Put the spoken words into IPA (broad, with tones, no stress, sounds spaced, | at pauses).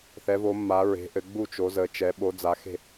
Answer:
θ ɛ˨˦ v o˨˦ mː a˨˦ ɹ e̤˨˦ ʔ ɘ˨˦ ɡ͡b u˥˨ t͡ʃ o˨˦ z ə˨˦ t͡ʃ ɛ˨˦ ɓ o˨˦ d͡z a˨˦ x e̤˥˨